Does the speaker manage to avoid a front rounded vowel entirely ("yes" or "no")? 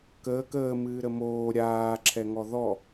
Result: yes